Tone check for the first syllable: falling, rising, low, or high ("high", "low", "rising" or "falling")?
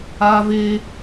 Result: high